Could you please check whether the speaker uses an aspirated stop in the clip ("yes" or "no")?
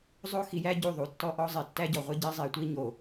no